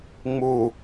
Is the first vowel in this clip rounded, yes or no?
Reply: yes